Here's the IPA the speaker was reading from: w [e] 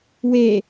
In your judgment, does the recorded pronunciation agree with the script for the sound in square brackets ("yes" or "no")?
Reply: yes